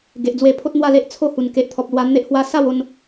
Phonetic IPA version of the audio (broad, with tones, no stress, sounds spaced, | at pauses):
ɡ e˨ ʔ d͡z w e˧ pʰ o˦ t̚ n̪ w a˥˧ l e˦ ʔ t͡sʰ o˥˧ h u˨˩ n k e˨ ʔ t̪ʰ ɔ˨ p̚ l w a˧ n̪ e˦ ʔ h w a˦ s a˥˧ w o˦ n